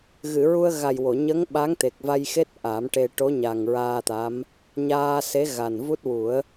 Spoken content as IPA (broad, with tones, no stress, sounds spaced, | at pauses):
ɣ ɨ˨˩˨ ɹ u˧ ə̯ ɣ a˨˩ j w o˨˩˨ ɲ ə˧˥ ŋ ɓ a˧˥ ŋ t̪ e˨˩ k̚ v a˧ j x e˦˥ t̚ ʔ a˨˩˦ m ʈ e˧ ʈ o˧˥ ɲ a˨˩ ŋ ɹ aː˧ t̪ a˧˥ m | ɲ aː˧ s e˧˥ ɣ a˨˩ n v u˦˥ t̚ w u˨˩˦ ə̯